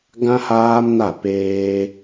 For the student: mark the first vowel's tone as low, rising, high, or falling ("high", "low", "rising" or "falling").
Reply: high